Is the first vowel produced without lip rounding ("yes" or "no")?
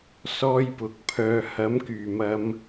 no